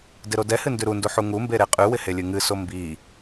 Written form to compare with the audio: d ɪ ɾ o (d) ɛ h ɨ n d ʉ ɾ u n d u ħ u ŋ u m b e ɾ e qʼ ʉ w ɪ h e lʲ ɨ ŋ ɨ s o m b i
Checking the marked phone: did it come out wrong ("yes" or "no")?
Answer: no